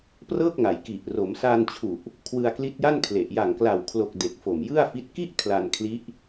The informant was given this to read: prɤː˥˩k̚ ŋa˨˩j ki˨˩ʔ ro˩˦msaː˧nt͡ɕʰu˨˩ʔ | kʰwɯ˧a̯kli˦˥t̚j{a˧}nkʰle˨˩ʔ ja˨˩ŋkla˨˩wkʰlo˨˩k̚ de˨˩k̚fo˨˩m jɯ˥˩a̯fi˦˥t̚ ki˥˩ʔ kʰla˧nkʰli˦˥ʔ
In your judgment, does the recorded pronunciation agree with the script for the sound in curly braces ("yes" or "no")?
no